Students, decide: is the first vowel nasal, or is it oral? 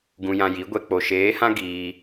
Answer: nasal